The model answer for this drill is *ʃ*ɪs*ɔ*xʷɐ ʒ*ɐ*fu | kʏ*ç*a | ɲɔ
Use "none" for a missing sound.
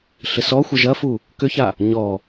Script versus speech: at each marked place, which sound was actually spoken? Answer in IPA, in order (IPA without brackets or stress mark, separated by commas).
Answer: ɬ, ɔ, ɐ, ç